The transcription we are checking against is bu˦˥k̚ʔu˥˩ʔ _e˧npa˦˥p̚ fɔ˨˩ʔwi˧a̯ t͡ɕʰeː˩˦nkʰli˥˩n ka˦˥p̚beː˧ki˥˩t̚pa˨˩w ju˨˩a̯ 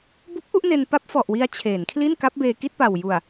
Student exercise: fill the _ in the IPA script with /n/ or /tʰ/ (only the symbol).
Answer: n